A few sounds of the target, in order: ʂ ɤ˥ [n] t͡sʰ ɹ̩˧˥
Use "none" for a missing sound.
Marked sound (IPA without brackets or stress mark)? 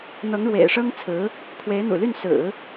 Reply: ŋ